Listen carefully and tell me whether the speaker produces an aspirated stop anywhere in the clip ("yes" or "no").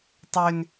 no